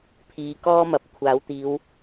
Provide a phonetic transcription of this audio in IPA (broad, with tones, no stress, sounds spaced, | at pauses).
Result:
pʰ iː˨˧ k ɔː˥ m ɐ˨˥ p̚ kʷʰ aː˨˥ w t̪ iː˨˧ w